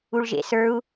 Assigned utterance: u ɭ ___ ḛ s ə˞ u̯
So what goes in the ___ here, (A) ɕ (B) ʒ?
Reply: B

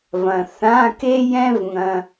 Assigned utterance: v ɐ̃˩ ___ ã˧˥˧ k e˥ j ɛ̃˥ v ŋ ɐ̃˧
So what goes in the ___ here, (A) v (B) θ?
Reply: B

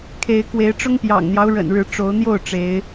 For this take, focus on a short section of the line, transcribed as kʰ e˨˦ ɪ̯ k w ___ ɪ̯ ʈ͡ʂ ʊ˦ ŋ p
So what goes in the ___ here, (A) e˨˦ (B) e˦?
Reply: A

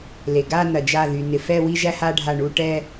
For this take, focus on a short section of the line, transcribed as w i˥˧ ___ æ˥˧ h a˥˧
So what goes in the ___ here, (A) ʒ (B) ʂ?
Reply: A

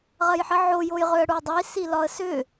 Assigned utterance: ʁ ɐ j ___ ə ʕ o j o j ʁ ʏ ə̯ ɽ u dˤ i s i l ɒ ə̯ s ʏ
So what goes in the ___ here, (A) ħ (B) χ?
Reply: A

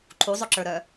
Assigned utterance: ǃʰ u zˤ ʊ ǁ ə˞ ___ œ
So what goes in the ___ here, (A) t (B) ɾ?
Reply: B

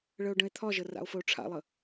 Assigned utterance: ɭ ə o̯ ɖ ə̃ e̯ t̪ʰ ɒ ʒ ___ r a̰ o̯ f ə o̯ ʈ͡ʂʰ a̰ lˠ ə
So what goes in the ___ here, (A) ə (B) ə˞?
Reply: A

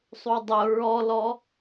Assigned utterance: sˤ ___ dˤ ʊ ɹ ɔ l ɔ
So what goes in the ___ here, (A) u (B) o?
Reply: A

